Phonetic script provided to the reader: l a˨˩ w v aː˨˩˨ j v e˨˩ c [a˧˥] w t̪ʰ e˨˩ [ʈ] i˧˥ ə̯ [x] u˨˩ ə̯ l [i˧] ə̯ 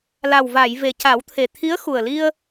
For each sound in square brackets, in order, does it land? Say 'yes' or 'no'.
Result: no, no, yes, yes

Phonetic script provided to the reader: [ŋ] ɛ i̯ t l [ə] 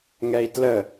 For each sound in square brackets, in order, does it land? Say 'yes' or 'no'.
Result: yes, yes

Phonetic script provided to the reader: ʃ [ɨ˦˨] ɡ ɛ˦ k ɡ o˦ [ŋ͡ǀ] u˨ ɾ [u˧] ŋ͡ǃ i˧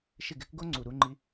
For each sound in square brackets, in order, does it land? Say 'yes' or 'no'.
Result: no, yes, yes

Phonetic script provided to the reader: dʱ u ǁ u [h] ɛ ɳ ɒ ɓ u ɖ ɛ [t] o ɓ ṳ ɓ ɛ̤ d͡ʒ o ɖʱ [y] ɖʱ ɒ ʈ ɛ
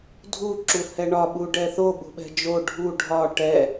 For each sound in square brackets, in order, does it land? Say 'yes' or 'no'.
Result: yes, no, no

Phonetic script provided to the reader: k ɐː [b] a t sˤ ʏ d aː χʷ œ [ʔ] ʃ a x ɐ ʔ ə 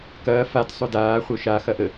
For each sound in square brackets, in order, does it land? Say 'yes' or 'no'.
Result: no, no

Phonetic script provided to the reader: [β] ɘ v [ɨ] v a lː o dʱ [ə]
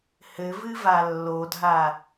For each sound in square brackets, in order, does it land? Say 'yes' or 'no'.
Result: no, yes, no

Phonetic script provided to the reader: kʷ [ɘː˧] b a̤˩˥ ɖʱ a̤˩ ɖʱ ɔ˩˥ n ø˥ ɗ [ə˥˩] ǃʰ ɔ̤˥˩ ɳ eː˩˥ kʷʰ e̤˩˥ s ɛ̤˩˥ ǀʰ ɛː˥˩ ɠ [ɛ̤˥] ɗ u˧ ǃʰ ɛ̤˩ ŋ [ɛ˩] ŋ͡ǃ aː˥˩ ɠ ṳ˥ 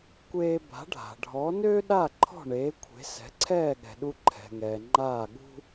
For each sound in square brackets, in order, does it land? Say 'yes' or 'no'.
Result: no, no, no, yes

